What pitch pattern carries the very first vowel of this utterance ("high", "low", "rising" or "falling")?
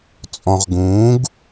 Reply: low